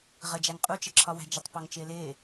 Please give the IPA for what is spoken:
ʁ ə d͡ʒ æ ŋ qʼ u t͡ʃ ə ǁʰ ɒ w æ̤ d͡ʒ ɪ tˤ p ɒ ŋ t͡ʃ ɪː l ɪː

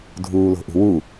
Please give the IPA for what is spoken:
dʱ uː l o̤ ʔ ṳ w u

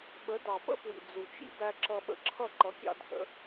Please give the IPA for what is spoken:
ɓ ə˨˦ d ɑ˨ p ə̰˦ p w ḭ˨ d͡z u˨ t͡ʃ ḭ˦ b æ˧ ǁ ʌ˧ ɓ ə̰˧ ǁʰ ʌ˦˨ ǃ ʌ˨˦ kʲ ɑ̰˧ dʱ ə̰˨˦

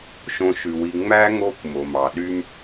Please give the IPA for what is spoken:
ʃ õ˨ ʃ ʉ˩ w i˨ ŋ͡m æ˥ ŋ o˦ kʷ m o˩ m ɑ˩ ɗ y˥ m

